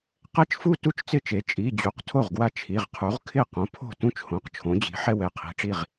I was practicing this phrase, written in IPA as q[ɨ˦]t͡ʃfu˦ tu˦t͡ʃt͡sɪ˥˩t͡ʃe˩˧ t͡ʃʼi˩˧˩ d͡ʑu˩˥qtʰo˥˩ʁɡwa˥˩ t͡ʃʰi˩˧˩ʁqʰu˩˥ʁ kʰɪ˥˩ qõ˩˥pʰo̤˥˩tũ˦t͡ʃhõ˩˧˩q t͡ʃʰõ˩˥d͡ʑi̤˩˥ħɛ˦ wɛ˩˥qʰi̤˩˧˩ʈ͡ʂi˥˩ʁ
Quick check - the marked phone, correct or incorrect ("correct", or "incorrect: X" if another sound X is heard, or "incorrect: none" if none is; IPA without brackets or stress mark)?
incorrect: ɛ˦